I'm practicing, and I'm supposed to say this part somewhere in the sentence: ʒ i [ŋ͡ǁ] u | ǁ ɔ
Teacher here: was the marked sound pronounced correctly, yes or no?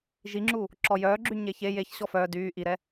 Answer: yes